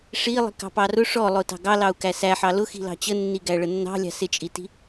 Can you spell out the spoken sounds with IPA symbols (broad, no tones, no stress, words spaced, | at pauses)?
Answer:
ʂilˠi̤ kɑ̤pɑrʊ ʂɔlˠʊ tɑ̤ɡɑlɑu̯ kæsæħɑ lʊxi̤lɑ̤ t͡ɕənːiɡæ ɭənːɑ̤lʲɑ̤ sɪt͡ʃʼiti̤